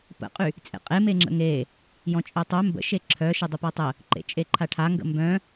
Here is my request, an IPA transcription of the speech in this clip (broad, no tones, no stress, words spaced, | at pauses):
pə̰qʼy | t͡sʼḛqʼe meŋ͡ǁə̰ŋe | jɔ̃t͡ʃʼœtˤœ mbə̰ʃe ǁʰœ ʃədˤəpatˤə | ǃḛt͡ʃʼeǃʰaʈʰa ŋɡə̰mbœ̃